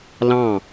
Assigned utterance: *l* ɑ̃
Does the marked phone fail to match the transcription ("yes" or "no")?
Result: no